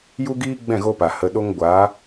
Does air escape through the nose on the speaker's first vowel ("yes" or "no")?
no